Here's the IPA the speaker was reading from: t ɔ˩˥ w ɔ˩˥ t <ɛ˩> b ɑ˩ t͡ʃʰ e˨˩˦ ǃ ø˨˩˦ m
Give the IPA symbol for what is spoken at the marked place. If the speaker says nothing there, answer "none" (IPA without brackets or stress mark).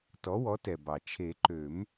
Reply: ɛ˩